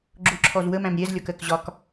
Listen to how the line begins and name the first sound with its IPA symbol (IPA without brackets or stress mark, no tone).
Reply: ɡ͡ǁ